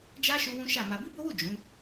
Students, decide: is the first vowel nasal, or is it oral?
oral